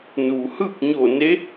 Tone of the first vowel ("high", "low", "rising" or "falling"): low